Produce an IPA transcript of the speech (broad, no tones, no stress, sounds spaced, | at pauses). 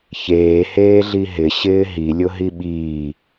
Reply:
ç eː h eː ɮ i ɦ ɪ ɕ ɪː ɦ i lʲ ʊ ɦ i ɓ iː